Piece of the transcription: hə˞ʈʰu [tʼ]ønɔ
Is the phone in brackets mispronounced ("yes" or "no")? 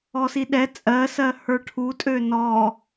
no